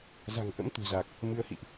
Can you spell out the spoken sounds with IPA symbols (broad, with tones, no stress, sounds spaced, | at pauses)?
z a̤˨˩ ŋ ʔ ə̰˧˥ m t̪ ṳ˨˩ z a˨˩ k̚ | m ɨ˨˦ ə̯ h ḭ˧˨ ʔ